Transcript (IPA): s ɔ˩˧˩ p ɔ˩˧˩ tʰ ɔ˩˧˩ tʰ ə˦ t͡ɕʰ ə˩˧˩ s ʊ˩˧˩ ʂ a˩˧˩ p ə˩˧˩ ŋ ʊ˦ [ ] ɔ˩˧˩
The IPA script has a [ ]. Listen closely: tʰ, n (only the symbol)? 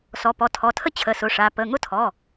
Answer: tʰ